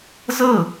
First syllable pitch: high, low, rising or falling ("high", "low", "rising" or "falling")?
falling